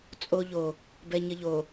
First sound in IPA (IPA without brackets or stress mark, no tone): t͡sʼ